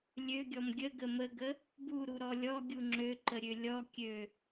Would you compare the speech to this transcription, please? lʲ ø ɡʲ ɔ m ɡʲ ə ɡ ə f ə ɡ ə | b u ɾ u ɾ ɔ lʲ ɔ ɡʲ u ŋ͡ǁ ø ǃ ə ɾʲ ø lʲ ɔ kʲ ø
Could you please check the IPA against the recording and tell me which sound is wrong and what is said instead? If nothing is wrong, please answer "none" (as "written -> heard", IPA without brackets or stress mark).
f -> m